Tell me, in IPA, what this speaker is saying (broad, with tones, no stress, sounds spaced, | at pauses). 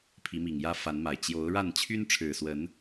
pʰ i˨˦ m i˨˩ ŋ j ä˦ f a˨˦ n m a˨˩ ɪ̯ t͡ɕ j o˨˦ ʊ̯ ɻ a˥˨ n t͡ɕʰ y˦ n ʈ͡ʂʰ ɻ̩˨˩ s w ə˨˦ n